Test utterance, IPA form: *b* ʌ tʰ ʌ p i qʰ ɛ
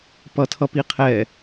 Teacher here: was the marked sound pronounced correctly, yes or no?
no